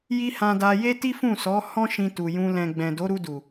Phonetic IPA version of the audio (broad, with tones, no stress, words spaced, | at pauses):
ji˦ hã˧da˧ je˦ti˦fũ˦˨sɔ˨˦ hɔ̃˦ ʃĩ˧tu˨ jũ˧ lɛ̃˨ɡ͡bɛ̃˨do˨˦ɾu˧ du˨